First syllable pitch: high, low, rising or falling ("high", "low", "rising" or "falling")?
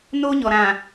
high